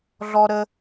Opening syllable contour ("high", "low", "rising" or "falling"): high